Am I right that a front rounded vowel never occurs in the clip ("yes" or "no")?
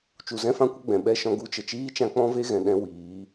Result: yes